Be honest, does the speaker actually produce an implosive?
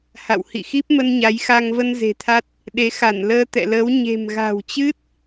yes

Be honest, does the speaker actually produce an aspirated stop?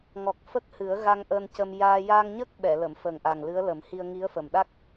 no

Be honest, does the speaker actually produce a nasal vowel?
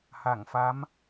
no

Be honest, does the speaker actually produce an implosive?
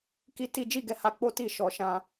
no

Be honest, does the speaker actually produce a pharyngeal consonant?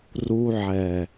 yes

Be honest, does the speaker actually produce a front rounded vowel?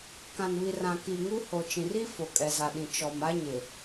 no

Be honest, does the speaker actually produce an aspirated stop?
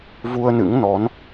no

